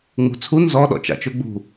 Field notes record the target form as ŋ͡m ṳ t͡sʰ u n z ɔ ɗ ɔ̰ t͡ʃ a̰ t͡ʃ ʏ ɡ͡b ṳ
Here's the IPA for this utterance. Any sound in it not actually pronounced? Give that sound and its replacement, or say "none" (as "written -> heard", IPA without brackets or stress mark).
none